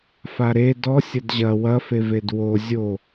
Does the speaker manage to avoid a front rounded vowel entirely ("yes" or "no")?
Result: yes